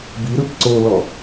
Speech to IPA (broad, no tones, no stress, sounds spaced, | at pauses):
b i ɾ ɯ p ǀ o l ɔ